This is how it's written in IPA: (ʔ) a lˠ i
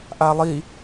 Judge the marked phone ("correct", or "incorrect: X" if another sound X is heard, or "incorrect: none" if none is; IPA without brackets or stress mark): correct